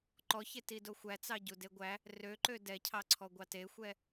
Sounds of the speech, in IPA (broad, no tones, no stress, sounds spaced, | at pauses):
ǃ ɔ ç e t i d o xʷ æ t͡s ɑ ɟ u d e ɡʷ æ | r ø ǃ ø d ɛ cʰ ɑ ǀʰ ɔ ɡʷ ɑ t e xʷ ɛ